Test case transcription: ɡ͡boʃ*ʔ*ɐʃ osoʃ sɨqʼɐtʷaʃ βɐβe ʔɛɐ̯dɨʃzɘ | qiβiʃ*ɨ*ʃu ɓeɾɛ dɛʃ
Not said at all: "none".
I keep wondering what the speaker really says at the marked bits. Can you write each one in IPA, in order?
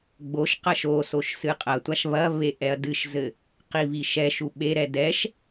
q, ɛ

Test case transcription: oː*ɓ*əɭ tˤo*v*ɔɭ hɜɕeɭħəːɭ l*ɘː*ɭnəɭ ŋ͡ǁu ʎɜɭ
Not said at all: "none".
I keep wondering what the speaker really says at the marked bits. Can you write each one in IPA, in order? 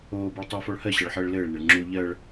b, f, ɘː

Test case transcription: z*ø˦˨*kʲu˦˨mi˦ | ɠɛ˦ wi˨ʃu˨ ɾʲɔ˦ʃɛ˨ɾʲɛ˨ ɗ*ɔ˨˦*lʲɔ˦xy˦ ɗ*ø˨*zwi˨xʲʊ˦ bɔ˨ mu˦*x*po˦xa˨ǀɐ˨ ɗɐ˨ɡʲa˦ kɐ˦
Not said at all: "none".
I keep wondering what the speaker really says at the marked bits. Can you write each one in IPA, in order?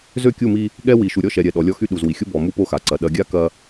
ø˦˨, ɔ˨˦, u˨, none

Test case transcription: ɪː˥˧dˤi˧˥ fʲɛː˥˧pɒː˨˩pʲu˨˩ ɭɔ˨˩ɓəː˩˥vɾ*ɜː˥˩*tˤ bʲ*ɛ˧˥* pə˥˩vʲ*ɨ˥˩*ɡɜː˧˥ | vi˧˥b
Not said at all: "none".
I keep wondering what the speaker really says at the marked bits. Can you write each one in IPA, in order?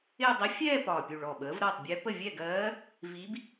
ɜː˥˩, ɛ˧˥, ɛ˥˩

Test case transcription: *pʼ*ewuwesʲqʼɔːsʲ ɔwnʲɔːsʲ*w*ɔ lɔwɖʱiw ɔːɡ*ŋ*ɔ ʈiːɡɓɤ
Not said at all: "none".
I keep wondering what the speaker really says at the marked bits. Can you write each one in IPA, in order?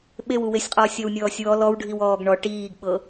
ɓ, w, ɳ

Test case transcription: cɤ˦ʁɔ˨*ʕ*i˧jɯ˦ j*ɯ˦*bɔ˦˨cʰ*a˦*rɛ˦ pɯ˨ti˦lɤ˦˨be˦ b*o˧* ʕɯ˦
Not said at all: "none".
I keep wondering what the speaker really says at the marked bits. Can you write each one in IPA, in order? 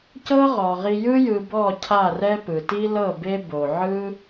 ʁ, ɯ˧, a˦˨, o˧

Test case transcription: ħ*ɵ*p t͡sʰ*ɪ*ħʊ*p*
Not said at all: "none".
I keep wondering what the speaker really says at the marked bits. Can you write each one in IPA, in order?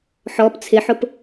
ɔ, ɪ, p

